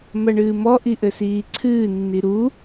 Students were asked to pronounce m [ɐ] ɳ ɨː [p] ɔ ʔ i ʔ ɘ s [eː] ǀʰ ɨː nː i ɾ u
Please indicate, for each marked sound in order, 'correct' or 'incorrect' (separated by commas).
correct, incorrect, incorrect